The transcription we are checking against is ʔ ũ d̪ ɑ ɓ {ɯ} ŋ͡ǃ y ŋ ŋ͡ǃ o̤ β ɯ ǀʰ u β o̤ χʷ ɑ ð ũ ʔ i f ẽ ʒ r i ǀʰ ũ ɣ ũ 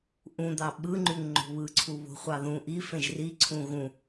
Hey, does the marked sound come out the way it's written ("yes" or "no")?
yes